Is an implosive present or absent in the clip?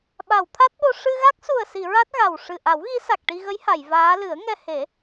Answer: present